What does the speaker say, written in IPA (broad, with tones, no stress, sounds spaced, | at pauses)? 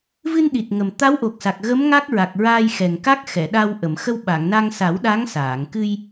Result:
v ɨ˧ n ɗ i˨˩ t̚ ŋ ə˨˩ m t̪ a˧˥ w ʔ o˨˩ k̚ s a˨˩ k̚ ɣ ə˧˥ m ŋ a˦˥ k̚ ɹ a˨˩ k̚ ɹ aː˧ j x ɛ˨˩ ŋ k a˦˥ k̚ x ɛ˨˩˨ ɗ a˧ w ʔ ə˨˩˨ m x ə˧ w ɓ a˨˩˨ ŋ n a˧ ŋ s a˨˩˦ w ɗ a˧˥ ŋ s aː˨˩˨ ŋ k ɨ˧ j